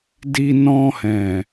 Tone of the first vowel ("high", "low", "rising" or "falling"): low